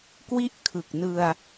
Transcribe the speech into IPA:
k w i˥˩ ʔ kʰ ɯ˨˩ k̚ n ɯ˧ a̯

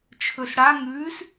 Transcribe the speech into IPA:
t͡ʃʰ ɵ s ɽ a ŋ ʉː s

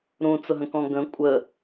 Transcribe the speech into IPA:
ɾ ũ t͡s ʊ ɦ ə̃ k ɔ̃ ɡ ə̃ kʷʼ ə

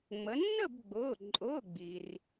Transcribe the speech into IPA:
ŋ͡m ə˩˧ nː ə˥˨ b ɡ͡b ʊː˩˧˩ ǃʼ ʊː˩˧˩ ɡ͡b i˩ r

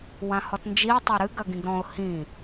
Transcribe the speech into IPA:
w ã h ɔ t n d͡ʒ i ə̯ tˤ ɛ ɾ ɨ ɡ ɐ ɡ ĩ ɡ ɾ ɔ̃ ʊ̯ h ĩ

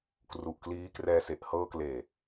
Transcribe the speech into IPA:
k r u˨˩ ʔ k l iː˦˥ k r ɛː˧ s e˨˩ ʔ h ɤː˧ k l eː˨˩

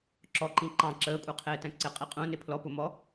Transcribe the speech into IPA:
ǁ ɔ ǃ ĩ ǃ ɑ̃ ǁ əː kʷʼ ə˞ qʰ ɪː t æ̃ ǀ ɪ qʼ i qʼ ũ n ɪ pʰ l ɔ p ʊ m ɔ

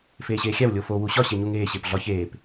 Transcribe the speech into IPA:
f eː ɕ eː xʲ æ w lʲ o f o w u ɕ ɒ ɕ e ɲ u ŋ eː ɕ e p ɮ ɒ ç eː p

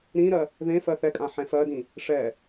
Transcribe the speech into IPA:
ɾ ĩ ɾ ɜ | ð ẽ f ɜ θ ɛ kʼ ã ħ ɛ̃ f ɜ d ĩ | ʂ ɛ

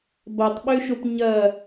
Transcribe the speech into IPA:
b ɐ tˤ ɓ ø ʃ o p ɲ ɐ

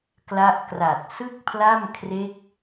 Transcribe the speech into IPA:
k l a˦˥ ʔ k r a˨˩ t̚ s ɯ˥˩ k̚ pʰ l a˥˩ m kʰ r e˦˥ k̚

